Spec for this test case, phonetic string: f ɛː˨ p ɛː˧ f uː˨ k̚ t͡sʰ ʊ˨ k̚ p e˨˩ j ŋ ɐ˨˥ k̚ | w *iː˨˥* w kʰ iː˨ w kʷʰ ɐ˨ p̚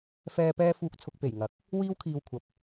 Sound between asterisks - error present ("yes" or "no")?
yes